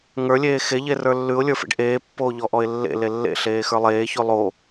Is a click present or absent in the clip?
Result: absent